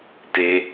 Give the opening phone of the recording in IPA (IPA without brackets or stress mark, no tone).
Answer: t